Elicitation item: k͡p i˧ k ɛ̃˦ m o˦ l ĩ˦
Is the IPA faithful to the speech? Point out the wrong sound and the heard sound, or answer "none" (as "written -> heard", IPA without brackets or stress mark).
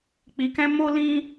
none